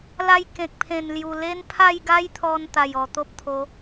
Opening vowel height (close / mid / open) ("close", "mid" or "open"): open